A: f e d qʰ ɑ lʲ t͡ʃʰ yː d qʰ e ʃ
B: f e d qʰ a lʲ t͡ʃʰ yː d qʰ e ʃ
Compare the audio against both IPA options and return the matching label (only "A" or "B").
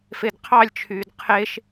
A